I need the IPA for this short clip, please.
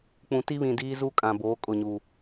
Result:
k͡p ũ˨ t i˦ β ĩ˨ d iː˦ z u˦ kʼ ã˨ b oː˨˦ kʼ ʊ˦˨ ɲ uː˨

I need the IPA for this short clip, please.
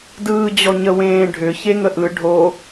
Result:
d ɯː d͡ʑ ɔ ɲ ə w ẽː ɖʱ ʏ ç e ŋ ə ʔ ɯ ɖʱ o

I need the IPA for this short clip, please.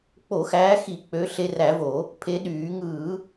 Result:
k͡p o˧˩˧ x æː˨˦ x i˧˩˧ k͡p ø˨˦ ɬ e˨˦ r æ˧˩˧ v o˧˩˧ | pʰ e˨˦ ɗ yː˧˩˧ ŋ ɯː˧˩˧

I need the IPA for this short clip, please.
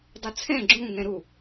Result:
dˤ u t͡sʰ ɛ̃ ɡ͡ǁ ũ ŋ ɛ̃ ɾ u

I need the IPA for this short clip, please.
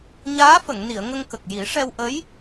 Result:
ɲ aː˧˥ f ə˨˩˨ ŋ n i˨˩˨ ə̯ ŋ ə˧ ŋ k ə˨˩ k̚ j i˨˩˦ ʂ ɛ˧ w ʔ ə˧˥ j

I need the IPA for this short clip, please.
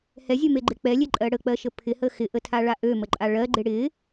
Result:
h ɛ zʲ ø m e ɡ͡ǃ ɪ k͡p ɛ lʲ e ǃʼ ɜ ɽ ə k͡p ɜ ʃ ə pʰ ɪ h ə x ɪ ʔ ə tʰ a ɭ a ʔ ø m ə ǃʼ a ɭ ɜ ɡ͡ǃ ɪ ɽ ɪ

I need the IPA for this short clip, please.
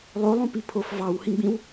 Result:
lˠ o lˠ ũ p i pʰ o f v ɑ w h ĩ ɡ͡b ĩ w

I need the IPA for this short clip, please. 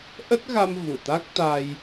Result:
ʔ ə˦˥ t̚ ɣ a˧ m v u˧˩ t̪ a˦˥ k̚ t̪ a˧ j

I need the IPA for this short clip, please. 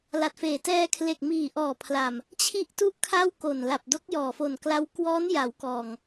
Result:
l a˨˩ t̚ f eː˨˩ t ɛː˧ kʰ l e˨˩ k̚ m iː˨˩ ʔ ɔː˨˩ pʰ l a˨˩ m | t͡ɕʰ i˦˥ ʔ t u˦˥ ʔ kʰ a˥˩ w k o˨˩ n l a˨˩ p̚ d o˦˥ k̚ j ɔː˨˩ f o˨˩ n k l a˦˥ w k w ɔː˦˥ n j a˩˦ w k ɔː˨˩ ŋ

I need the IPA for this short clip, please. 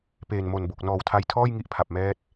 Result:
p eː˨˩ n m o˨˩ n b o˨˩ k̚ n ɔː˨˩ w tʰ a˧ j tʰ ɔː˥˩ j ŋ i˥˩ ʔ pʰ a˨˩ p̚ m ɛː˦˥ t̚

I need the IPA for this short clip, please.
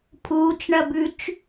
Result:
pʰ uː t͡ʃ ɳ ɐ b ʉ t͡ʃ

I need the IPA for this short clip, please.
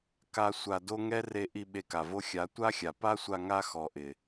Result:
k a˦ sʷ a˧ d o˦ ŋ ɛ˦ r e˧ ʔ i˧ ɓ e˧ k a˨ v o˦ xʲ a˨˦ tʷ a˦ xʲ a˨ p a˦ sʷ a˧ ŋ a˦ x ɔ˨ ʔ ɪ˨

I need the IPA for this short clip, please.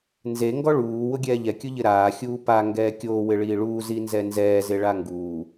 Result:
n z e ŋ ɡ ɔ ɭ uː w ʊ ɡʲ ɛː ʎ ɛ kʲ ʊ ʎ ɪ ɾ aː xʲ uː p a ŋ ɡ ɛː kʲ oː w ɪ ɭ iː ɭ uː z i n z ɛ n z ɛː z e ɭ a ŋ ɡ uː

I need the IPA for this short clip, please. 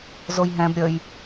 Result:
z o j ɦ ɛ̃ b ɾʲ ə j

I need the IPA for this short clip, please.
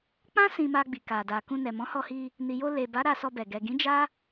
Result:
k͡p ã˦ s ĩ˧ m a˧ ɡ͡b i˨ k a˨ d a˨ k ũ˧ n ɛ˨ m ɔ̃˨˦ h ɔ˧ h i˧ | n i˨ j o˧ l e˨ b a˨˦ ɾ a˧ s ɔ˧ b ɛ˨ ɡ ɛ˨ ɡ ĩ˨˦ d͡ʒ a˦

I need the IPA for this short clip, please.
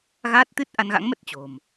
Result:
ɣ aː˦˥ t̚ t̪ ɨ˦˥ t̚ ʔ a˧ n ɣ a̰˧˥ ŋ m ə˦˥ t̚ t͡ɕ o̤˨˩ m

